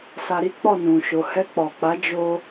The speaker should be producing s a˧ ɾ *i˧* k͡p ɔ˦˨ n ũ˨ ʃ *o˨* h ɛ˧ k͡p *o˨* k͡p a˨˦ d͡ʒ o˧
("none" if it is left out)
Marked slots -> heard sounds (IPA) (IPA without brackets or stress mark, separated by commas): i˦, o˨, ɔ˨